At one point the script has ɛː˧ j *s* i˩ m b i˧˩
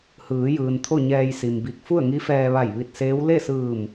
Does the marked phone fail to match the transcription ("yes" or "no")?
no